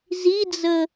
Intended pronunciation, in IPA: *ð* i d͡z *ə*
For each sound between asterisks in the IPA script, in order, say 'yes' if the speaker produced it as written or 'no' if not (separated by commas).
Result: no, yes